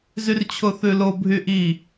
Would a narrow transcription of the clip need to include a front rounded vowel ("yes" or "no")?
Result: yes